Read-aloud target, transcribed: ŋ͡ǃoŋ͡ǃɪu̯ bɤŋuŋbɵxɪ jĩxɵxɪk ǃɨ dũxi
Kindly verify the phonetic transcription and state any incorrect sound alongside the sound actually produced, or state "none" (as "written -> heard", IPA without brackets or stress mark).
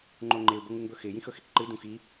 none